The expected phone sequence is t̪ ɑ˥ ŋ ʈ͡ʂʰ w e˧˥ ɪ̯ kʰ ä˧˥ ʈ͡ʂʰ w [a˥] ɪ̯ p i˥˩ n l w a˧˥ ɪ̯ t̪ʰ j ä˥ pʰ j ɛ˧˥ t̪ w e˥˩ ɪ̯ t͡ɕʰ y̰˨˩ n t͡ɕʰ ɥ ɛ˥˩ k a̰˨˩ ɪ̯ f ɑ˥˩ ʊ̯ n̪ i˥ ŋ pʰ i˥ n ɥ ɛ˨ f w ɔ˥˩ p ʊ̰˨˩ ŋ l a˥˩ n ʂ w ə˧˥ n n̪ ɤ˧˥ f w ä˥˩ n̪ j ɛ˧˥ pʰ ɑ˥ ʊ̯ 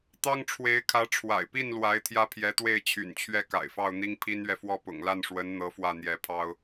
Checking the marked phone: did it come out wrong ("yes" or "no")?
yes